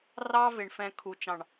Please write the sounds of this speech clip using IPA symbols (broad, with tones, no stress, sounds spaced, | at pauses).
r ɑ˦ v ɪ˨ ɳ f ɛ̃˨ kʰ u˨ t͡ʃ ɑ̃˨ ɳ